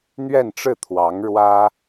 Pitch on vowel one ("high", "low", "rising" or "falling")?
falling